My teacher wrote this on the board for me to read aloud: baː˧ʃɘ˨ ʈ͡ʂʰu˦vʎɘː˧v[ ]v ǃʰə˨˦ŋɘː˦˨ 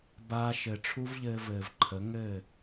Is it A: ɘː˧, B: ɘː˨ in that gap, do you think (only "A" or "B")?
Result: B